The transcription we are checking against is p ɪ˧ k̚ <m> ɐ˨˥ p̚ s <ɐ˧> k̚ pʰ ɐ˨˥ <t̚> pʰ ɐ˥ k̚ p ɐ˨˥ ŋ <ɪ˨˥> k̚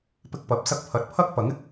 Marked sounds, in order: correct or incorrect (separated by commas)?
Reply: incorrect, correct, correct, incorrect